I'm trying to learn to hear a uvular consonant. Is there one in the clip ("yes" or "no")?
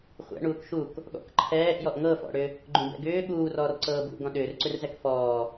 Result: yes